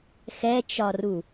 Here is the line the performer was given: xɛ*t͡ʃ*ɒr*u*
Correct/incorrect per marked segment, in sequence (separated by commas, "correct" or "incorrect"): correct, correct